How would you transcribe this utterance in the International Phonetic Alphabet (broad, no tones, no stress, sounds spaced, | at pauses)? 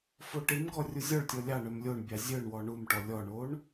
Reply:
f o ʈ i m ɡ ɔ rʲ u zʲ ɔ ɭ tʲ ɔ lʲ ɑ ɳ œ m lʲ o ɳ bʲ ɑ zʲ œ ɳ w ɔ ɳ u m ʈ ɔ lʲ ɔ ɳ o ɳ